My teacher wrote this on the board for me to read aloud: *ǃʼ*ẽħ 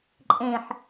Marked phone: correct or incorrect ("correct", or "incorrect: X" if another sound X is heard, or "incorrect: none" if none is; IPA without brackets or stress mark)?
correct